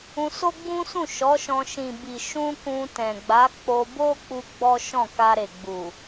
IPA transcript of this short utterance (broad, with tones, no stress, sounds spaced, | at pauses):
ũ˧ s o˦ ɡ͡b ũ˦ s ũ˦˨ ʃ ɔ˨˦ ʃ ɔ̃˧ ʃ ĩ˨ b i˨ ʃ ũ˧ k ũ˧ t ɛ̃˨ ɡ͡b a˨˦ k͡p o˧ b o˦ k͡p u˦ ɡ͡b ɔ˦ ʃ ɔ̃˦˨ k a˧ ɾ e˨ ɡ͡b u˨